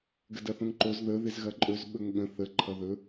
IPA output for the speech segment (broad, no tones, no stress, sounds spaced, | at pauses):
ɡ ə d ɐ θ õ ŋ ǃ o z ð ə ð ɪ z ɣ ɐ ǃʼ ɵ z ɓ ɵ ŋ ɠ ə̃ θ ə ǃʰ ʌ ð ɵ